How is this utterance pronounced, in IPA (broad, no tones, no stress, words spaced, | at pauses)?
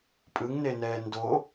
pʼɯŋnenɛː ndo